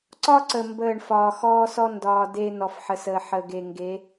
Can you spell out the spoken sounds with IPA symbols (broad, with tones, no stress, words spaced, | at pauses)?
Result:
ǀɒ˦ǀə˨ mbəː˦˨ɳ fɒː˨xɔː˦sɔ˦ ndɒː˨ de˦ nɔ˨fħə˨səː˨ ħə˨ɡe˨ ŋɡe˨˦